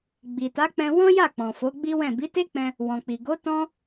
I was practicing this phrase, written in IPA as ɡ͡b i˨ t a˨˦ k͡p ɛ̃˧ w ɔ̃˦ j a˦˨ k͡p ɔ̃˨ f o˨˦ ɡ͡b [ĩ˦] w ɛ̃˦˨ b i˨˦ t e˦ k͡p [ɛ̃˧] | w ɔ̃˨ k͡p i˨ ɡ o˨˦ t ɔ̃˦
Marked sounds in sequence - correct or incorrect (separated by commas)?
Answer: incorrect, correct